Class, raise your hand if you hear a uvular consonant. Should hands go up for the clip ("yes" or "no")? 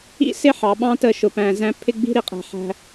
yes